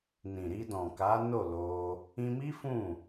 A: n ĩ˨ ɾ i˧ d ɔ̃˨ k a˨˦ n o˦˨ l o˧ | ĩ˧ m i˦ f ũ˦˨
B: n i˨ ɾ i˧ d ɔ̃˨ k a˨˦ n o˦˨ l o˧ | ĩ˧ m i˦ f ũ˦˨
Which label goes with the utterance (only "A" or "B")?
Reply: A